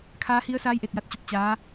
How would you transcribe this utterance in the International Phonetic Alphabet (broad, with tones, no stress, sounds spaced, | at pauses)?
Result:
kʰ aː˧˥ h i˧˥ ə̯ s aː˧˥ j ʔ e˧˩ t̚ j a˧ t̚ t͡ɕ o˧ p̚ t͡ɕ aː˧˥